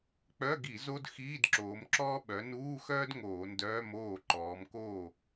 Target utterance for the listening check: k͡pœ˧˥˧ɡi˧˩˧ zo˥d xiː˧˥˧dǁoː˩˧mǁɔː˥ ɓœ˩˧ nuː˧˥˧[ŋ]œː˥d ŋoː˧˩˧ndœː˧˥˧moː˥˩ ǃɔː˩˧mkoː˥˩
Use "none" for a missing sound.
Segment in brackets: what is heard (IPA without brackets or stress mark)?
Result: x